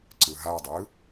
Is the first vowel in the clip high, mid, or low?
high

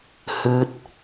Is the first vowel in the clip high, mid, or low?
high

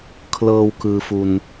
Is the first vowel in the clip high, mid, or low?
mid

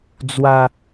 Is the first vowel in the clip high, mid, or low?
low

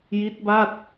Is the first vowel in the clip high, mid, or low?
high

